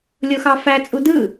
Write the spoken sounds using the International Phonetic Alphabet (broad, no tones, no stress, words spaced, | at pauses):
lʲoxɑfæ t͡sʼudɯ